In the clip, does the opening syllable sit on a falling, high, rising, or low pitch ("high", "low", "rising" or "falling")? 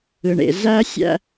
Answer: low